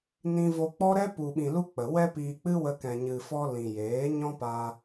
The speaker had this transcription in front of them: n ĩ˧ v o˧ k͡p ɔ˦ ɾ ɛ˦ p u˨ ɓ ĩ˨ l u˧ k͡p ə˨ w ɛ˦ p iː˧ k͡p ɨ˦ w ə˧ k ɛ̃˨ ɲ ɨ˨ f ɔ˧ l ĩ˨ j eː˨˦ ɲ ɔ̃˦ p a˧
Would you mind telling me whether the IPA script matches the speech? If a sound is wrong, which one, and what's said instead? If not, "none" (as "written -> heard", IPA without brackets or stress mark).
none